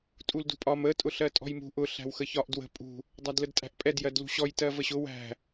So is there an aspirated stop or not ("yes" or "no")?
no